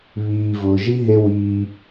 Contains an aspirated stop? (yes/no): no